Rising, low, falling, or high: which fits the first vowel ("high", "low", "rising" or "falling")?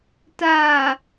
low